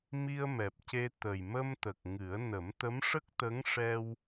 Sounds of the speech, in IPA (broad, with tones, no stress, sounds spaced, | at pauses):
m i˧ ə̯ m ɛ˨˩ p̚ c e˧ t̪ ə˨˩ j m ə˧ m t̪ ə˨˩ k̚ ŋ ɨ˨˩˦ ə̯ n ə˨˩˦ m t̪ ə˧˥ m ʂ ə˦˥ k̚ t̪ ə˧˥ ŋ ʂ ɛ˧ w